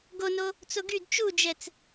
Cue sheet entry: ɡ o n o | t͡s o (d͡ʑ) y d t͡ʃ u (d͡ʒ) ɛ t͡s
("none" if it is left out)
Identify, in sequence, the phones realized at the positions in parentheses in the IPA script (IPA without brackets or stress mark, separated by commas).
ɡ, d͡ʒ